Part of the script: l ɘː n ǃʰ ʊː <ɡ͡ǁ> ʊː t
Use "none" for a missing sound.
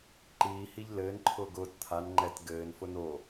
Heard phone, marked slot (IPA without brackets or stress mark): ɡ